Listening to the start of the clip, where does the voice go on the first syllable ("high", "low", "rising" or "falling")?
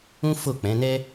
high